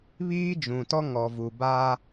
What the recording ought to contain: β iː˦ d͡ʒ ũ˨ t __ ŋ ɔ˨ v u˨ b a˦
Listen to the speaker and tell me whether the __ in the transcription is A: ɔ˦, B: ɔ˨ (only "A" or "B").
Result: A